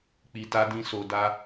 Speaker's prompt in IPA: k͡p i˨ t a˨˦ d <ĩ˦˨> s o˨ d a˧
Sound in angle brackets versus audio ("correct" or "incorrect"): incorrect